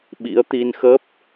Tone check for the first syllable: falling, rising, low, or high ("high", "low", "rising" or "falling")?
rising